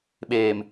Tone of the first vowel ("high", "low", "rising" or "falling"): low